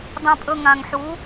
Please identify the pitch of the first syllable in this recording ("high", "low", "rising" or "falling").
high